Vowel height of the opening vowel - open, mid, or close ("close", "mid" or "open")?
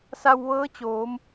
open